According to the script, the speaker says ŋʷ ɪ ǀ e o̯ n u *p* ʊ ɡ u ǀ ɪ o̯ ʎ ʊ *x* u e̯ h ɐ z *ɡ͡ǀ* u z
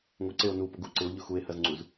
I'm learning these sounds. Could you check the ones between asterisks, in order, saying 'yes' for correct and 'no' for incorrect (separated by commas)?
yes, yes, no